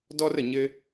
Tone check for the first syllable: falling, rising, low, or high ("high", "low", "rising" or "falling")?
high